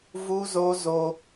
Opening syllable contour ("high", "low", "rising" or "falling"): high